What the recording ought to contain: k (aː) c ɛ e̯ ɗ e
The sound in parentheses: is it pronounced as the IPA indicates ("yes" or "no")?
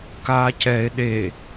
yes